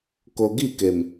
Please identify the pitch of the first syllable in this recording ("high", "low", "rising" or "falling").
low